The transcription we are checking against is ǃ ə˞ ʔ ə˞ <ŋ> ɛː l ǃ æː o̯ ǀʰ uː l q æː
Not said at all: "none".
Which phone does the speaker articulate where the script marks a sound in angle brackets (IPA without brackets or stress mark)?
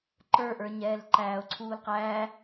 ɲ